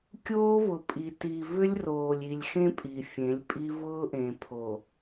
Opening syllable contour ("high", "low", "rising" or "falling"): high